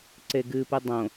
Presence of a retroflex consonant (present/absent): absent